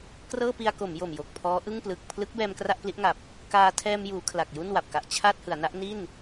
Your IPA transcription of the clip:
k r ɤː˥˩ p i˧ a̯ k o˩˦ m j o˨˩ m j o˨˩ k̚ pʰ ɔː˦˥ ʔ ɯ˥˩ ŋ p l ɯ˨˩ k̚ pʰ l ɯ˦˥ k̚ b ɛː˧ m k r a˥˩ ʔ p l i˦˥ ʔ ŋ a˨˩ p̚ | k aː˧ tʰ ɛː˧ m j uː˩˦ kʰ l a˨˩ k̚ j u˥˩ n w a˨˩ p̚ k a˨˩ ʔ t͡ɕʰ a˥˩ t̚ h ɯ˩˦ a̯ n a˦˥ ʔ n i˥˩ n

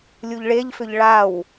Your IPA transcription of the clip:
lʲ u ʎ ɭ e ʎ f ʏ ʎ ɭ a w

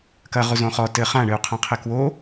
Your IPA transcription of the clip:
k ɐ ʁ u z õ χ ɔ t ɘ χ ã ɳ ɨ u̯ qʰ ã qʰ e k w o

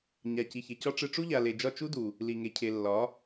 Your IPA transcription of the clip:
ɲ a˨ c i˨ ç e˨ c ɒ˦ ʈ͡ʂ ɨ˧ ʈ͡ʂ u˦ ʎ a˨ l e˨ d͡ʒ ɒ˦˨ t͡ʃ u˦ d u˨ | l i˨ ŋ e˨ cʰ e˨ lː ɒ˨˦

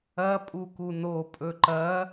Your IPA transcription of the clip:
ɐ pʼ u k u n o pʼ ɵ ǃ ɐ

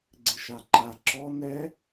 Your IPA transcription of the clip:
ɡ͡ǀ ɪ ʃ a ǃ a ǁ ɔ n ɛ

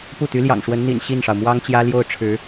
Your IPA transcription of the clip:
p u˥˩ t̪ y˧˥ l j ɑ̰˨˩ ŋ ʂ w ə˧˥ n n̪ ḭ˨˩ n ɕ i˥˩ n ʂ ɑ˩ ʊ̯ m w ɑ˥ ŋ t͡ɕ j ä˥ l j o˥˩ ʊ̯ ʈ͡ʂʰ ɻ̩˧˥

